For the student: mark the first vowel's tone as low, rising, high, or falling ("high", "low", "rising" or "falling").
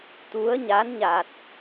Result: rising